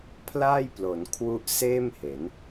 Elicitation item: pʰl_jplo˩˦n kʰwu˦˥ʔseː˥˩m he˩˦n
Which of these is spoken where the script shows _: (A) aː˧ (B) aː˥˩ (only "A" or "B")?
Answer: B